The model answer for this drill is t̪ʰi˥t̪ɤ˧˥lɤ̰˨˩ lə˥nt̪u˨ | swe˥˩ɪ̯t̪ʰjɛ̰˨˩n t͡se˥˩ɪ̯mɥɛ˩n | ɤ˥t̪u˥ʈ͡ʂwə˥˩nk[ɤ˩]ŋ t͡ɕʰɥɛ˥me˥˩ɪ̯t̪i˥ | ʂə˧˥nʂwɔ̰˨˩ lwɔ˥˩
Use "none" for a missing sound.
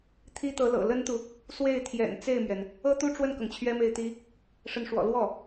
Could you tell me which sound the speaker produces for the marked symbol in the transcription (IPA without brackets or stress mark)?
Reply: ɤ˩